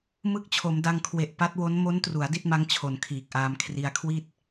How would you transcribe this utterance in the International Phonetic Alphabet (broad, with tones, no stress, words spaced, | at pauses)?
mɯ˦˥k̚t͡ɕʰo˩˦mda˧ŋkʰwe˨˩ʔ pa˦˥t̚wo˦˥n mo˦˥ntru˩˦a̯ di˥˩t̚ma˦˥ŋ t͡ɕʰo˨˩n kʰiː˨˩k̚ʔaː˧m kʰri˧a̯kʰwi˥˩t̚